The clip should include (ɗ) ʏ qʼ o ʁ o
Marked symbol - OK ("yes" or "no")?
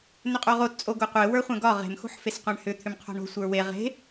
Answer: no